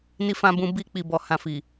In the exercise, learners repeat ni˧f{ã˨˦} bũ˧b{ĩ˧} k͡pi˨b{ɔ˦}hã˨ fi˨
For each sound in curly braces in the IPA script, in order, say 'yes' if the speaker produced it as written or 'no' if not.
no, no, no

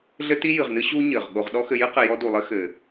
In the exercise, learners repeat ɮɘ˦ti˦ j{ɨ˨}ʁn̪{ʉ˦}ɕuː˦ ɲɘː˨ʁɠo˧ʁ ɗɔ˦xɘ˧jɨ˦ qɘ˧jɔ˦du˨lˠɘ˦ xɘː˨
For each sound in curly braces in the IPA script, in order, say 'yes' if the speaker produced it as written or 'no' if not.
yes, no

